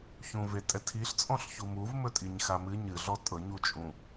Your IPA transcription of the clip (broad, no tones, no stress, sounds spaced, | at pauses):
ç ũ v e tʼ ɛ tʰ i ɬ t͡sʼ ɔ̃ ɬ ç u m u v m ɵ tʼ i ɲ x a m ɨ ɲ ɨ ɮ ɔ tʼ ɤ ɲ u t͡ʃʼ ũ